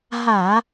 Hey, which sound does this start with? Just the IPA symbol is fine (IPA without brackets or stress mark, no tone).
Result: ɦ